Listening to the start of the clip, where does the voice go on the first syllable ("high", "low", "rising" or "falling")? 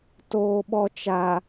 low